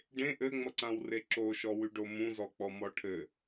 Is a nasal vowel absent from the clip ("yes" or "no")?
no